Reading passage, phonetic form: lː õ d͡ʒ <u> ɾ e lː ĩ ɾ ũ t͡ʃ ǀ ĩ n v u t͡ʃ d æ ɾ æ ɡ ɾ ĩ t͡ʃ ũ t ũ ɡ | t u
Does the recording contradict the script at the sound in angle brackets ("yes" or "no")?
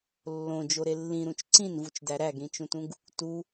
yes